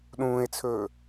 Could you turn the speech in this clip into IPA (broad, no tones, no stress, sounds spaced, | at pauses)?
ɗ ũː e̯ t͡sʰ ɵː